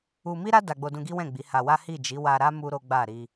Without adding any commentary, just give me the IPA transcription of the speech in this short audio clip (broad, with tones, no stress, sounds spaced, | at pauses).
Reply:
u˧ m i˦ ɾ a˦ d a˧ ɡ͡b o˧ d ũ˧ ɡ i˦ w ɛ̃˦˨ ɡ͡b i˨˦ h a˧ w a˦ h i˦˨ d͡ʒ i˨˦ w a˧ ɾ a˦ m u˦ ɾ o˦ ɡ͡b a˦˨ ɾ i˧